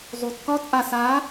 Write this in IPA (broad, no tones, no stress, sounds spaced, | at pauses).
zˤ u t k ɒ t ʔ a s a